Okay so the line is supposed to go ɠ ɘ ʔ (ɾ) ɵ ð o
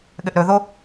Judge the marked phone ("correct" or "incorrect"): correct